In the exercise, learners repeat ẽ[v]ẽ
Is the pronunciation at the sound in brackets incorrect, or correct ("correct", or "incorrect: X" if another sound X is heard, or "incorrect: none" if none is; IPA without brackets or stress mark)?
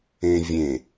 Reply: incorrect: vʲ